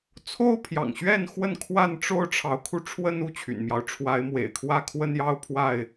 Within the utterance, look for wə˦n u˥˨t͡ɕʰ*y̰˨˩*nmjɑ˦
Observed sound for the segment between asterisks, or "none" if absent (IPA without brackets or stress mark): y̰˨˩